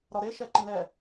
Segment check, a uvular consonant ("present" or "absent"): absent